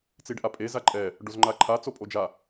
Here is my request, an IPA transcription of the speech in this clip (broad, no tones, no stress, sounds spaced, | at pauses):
t͡s i ɖ ʔ a pʼ e z a ǃʼ ɛ | ɖ o z ŋ͡ǃ a ǃʰ a t͡s o pʼ o d͡ʒ a